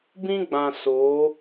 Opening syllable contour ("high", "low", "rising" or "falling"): high